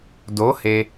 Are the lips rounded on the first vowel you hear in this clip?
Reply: yes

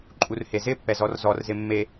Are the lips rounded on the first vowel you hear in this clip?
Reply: yes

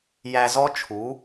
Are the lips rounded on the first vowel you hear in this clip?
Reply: no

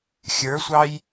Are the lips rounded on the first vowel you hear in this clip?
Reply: no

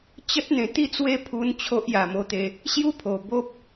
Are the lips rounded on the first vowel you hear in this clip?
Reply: no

